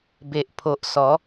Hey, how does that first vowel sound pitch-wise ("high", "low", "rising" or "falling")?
low